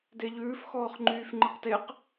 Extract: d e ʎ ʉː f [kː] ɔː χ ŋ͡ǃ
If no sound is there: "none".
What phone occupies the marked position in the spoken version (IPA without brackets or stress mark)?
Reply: x